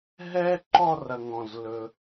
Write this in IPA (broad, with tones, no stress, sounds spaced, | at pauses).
ɦ ɛ˥ ǃ ɔ˥˧ r ɐ˧ ŋ ɔ̃˧˩ z l ɵ˧